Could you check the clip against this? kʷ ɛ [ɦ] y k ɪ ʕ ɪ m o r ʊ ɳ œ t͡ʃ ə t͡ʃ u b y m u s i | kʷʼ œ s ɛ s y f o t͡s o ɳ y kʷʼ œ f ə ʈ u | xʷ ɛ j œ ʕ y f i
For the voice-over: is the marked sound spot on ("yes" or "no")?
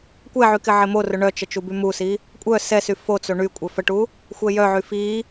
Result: no